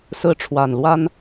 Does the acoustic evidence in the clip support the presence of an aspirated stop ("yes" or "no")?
yes